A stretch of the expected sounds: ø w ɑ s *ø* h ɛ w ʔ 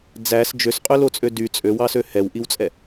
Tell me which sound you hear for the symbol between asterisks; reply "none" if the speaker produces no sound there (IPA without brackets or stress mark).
ø